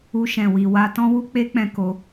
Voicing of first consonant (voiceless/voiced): voiceless